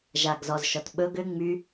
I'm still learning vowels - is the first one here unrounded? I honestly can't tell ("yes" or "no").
yes